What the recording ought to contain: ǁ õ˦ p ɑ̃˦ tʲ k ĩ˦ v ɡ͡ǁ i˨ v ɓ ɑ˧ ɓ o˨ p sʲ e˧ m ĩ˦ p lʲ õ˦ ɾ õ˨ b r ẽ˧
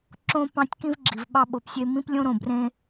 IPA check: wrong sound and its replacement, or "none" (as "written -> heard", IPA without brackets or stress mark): none